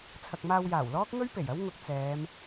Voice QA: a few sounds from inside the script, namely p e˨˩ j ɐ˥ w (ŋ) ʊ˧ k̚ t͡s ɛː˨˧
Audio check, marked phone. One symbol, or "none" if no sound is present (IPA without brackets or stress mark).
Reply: ŋ